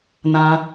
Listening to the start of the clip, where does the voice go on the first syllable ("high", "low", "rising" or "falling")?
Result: high